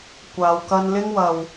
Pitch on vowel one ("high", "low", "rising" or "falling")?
low